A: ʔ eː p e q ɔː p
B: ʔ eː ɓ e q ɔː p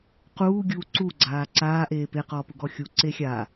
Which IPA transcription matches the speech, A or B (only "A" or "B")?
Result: A